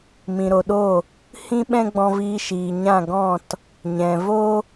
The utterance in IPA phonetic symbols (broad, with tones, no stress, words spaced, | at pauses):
mĩ˨ɾo˨ɗo˦˨ | hĩ˦ ɓɛ̃˦ɡ͡bɔ̃˧viː˧ʃiː˨ ɲã˦˨ɡɔ̃˦˨t | ɲɛ̃˨ vo˦